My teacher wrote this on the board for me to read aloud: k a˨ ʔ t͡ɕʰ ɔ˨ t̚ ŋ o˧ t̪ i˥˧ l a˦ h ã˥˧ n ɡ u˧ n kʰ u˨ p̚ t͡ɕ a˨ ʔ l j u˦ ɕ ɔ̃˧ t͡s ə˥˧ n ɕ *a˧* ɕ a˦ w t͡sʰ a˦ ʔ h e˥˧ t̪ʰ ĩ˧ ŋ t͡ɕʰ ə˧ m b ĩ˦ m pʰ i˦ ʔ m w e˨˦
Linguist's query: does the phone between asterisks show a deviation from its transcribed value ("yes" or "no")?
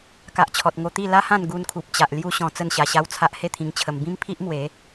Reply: no